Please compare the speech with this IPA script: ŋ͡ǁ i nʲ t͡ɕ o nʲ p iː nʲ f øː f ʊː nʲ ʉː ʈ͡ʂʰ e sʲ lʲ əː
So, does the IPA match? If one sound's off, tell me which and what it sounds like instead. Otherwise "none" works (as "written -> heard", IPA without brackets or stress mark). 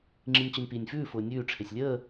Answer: øː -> ʉː